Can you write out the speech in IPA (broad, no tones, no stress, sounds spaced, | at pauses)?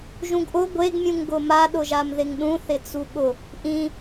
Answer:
ʒ ũ ɡ ʔ ʊ ɡʷ e ɡ mʲ ũ ŋ ɡ ʊ m a ɗ ʊ ʒ a m ð ɪ ŋ ɗ ũ θ ɪ t͡s u ɠ ʊ | ʔ ĩ